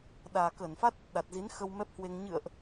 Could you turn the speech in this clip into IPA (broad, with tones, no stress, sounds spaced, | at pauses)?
ɗ aː˨˩ k əː˧˩ n f a˦˥ t̚ | ɗ a˨˩ t̚ z i˨˦ n x ə˧ w m ɛ˦˥ p̚ h w e˧ ŋ ɲ ɨ̰˧˨ ə̯ ʔ